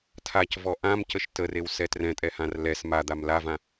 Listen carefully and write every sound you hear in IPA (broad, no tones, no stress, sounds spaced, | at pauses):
tʰ a c v ɔ ʔ ã m c ə ʃ t ə r e w s ɛ t r ɛ̃ tʼ ɛ h ã r l ɛ s m a d̪ a m l a v ã